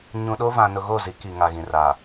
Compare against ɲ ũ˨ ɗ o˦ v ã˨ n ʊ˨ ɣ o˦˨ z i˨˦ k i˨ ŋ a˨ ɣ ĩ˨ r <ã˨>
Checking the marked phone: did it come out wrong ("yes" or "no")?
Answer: yes